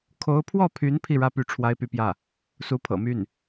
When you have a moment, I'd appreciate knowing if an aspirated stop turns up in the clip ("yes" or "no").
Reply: yes